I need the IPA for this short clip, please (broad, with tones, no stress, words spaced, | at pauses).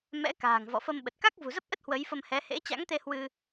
mɛ̰˧˥ka̤ː˨˩ŋ vɔ̰˧˨fə˧mɓə˨˩t̚ ka˦˥k̚vṳ˨˩zə˦˥p̚ʔə˦˥t̚ hwə˨˦jfə˧mhɛ˨˦ hḛ˧˥t͡ɕa̰˧˥ŋt̪e˧ hwɨ˧